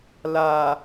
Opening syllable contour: low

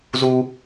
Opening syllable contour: high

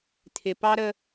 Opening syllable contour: low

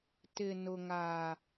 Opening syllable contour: low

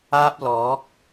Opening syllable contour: high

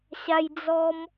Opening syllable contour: high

